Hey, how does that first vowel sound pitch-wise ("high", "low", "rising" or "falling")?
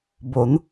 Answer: rising